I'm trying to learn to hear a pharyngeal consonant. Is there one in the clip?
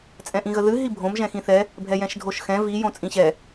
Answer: no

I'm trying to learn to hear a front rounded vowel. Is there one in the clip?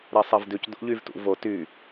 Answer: yes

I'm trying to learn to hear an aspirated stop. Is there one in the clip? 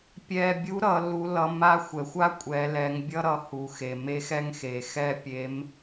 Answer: no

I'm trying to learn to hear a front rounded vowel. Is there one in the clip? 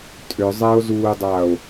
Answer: yes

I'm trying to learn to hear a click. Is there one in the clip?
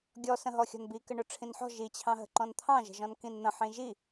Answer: yes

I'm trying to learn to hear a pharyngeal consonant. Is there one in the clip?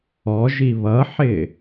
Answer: yes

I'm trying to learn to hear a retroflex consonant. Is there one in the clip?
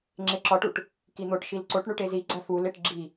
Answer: yes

